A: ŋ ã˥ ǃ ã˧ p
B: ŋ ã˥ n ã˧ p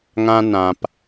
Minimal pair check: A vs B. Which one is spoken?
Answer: B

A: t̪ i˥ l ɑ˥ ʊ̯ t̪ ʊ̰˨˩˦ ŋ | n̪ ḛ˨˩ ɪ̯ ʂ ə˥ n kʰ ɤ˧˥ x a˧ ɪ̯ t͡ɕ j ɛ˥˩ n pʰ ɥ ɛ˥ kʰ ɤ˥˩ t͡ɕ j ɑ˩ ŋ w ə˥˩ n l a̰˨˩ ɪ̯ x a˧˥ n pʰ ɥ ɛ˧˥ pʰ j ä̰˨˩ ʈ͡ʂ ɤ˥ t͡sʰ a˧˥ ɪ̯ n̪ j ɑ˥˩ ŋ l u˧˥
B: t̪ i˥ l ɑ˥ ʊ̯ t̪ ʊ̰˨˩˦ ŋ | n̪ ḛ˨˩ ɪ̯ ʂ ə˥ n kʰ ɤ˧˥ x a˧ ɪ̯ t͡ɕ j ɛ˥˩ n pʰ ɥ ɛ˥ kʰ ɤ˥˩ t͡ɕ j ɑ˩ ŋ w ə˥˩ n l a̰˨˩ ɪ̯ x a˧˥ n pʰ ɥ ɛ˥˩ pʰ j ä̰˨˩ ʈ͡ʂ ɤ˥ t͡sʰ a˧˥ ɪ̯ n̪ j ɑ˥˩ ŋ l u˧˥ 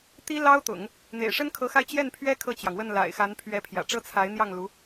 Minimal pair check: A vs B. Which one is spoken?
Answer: A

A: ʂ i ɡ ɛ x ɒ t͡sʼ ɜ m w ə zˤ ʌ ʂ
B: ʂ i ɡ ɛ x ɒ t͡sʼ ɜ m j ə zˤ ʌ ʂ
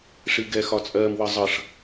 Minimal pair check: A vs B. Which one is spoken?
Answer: A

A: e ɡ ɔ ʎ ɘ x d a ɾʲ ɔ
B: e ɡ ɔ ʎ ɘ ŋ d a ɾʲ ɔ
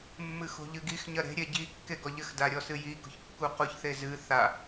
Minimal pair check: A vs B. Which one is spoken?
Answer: A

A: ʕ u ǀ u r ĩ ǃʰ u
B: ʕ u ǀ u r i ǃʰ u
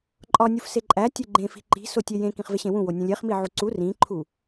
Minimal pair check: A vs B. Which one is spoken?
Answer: A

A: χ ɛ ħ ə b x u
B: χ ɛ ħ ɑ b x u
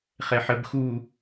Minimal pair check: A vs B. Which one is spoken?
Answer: A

